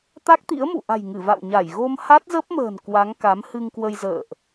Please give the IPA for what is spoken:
t̪ a˦˥ k̚ t̪ ḭ˧˥ ə̯ m ṵ˧˨ ʔ a̤˨˩ j ŋ ɨ˧˩ v a̰˧˨ w ɲ a˧˩ j ɣ o˧ m h a˦˥ t̚ z ə˦˥ p̚ m ə̤ː˨˩ n k w a˨˦ ŋ k a˨˦ m h ɨ˧ ŋ k w ə˧ j z ə̰ː˧˨ ʔ

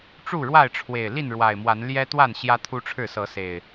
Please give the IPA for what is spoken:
ʈ͡ʂ u˥˨ ɻ w a˥˨ ɪ̯ ʈ͡ʂʰ w e˨˩ ɪ̯ l i˥˨ n ɻ w a˨˩ ɪ̯ m w a˨˦ n l j ɛ˦ t̪ w a˥˨ n ɕ j ä˦ t̪ʰ u˦ ʈ͡ʂʰ ɻ̩˥˨ s ɤ˨˦ s e˨˩ ɪ̯

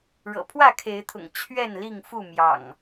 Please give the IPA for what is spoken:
ɻ ɤ̰˨˩ pʰ w ä˥˨ kʰ e˨˦ ɪ̯ t̪ʰ ʊ̰˨˩ ŋ t͡ɕʰ ɥ ɛ˥˨ n l i˥˨ ŋ f u˥˨ m j ɑ̰˨˩ ŋ

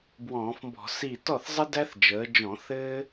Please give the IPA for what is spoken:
b w ɔ̃ː˧˩˧ f m b ɔ̤˧˩˧ s i˧˩ t ɔ˥˩ θ zˤ ɘ˥ d æ˥ θ d͡ʒ əː˩˧ d͡ʒ ɔ̃˧˩˧ θ ɘ˥

